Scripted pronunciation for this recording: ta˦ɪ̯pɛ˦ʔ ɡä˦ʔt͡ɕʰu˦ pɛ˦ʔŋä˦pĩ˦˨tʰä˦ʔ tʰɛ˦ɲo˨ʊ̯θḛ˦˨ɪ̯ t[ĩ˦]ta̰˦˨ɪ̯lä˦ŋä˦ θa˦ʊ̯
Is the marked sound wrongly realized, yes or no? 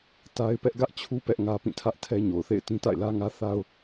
no